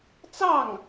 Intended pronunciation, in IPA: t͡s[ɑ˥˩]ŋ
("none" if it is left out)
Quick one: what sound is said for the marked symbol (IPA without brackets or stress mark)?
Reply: ɑ˥˩